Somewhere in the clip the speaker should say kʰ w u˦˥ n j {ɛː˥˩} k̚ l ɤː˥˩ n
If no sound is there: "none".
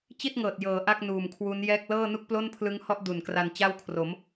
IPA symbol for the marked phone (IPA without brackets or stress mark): ɛː˥˩